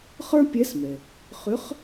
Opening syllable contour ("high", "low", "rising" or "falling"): high